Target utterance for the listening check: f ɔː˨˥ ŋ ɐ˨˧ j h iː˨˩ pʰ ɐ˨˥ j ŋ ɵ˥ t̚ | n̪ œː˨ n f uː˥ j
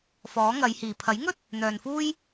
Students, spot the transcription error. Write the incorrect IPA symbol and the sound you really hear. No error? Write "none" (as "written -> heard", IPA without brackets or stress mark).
none